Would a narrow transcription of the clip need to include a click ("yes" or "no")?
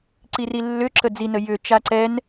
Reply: yes